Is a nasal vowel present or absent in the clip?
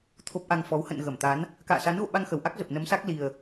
absent